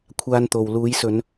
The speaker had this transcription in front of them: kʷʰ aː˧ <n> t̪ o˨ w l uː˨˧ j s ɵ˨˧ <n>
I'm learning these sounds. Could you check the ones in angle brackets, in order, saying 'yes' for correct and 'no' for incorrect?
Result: yes, yes

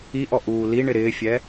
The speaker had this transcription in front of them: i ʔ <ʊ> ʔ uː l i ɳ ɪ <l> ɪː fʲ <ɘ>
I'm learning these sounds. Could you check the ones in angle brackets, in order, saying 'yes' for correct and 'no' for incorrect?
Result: no, no, no

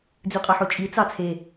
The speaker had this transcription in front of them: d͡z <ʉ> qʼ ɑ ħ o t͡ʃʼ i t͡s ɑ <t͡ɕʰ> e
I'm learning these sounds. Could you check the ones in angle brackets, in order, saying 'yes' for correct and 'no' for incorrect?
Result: yes, no

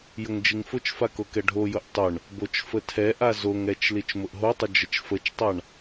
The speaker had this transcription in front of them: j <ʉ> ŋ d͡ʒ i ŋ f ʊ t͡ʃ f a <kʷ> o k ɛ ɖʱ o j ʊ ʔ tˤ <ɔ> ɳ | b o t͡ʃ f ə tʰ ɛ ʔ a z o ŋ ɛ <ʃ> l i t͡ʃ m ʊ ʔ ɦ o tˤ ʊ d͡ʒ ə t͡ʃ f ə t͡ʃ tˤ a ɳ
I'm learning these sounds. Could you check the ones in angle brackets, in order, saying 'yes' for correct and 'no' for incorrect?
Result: no, no, no, no

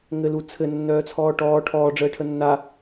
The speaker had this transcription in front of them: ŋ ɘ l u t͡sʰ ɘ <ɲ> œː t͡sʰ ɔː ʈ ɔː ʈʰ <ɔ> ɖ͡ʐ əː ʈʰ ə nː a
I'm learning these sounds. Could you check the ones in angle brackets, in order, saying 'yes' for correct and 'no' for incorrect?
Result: no, no

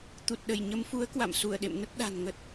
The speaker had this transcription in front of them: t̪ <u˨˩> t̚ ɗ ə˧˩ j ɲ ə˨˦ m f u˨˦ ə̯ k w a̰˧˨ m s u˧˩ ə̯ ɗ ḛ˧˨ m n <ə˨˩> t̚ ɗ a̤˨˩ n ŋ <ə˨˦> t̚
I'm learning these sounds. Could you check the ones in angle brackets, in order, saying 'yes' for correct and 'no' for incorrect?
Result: yes, no, no

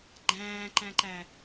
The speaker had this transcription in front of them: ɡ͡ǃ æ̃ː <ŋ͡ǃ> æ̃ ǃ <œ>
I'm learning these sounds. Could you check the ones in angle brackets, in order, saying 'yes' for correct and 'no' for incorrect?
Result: no, no

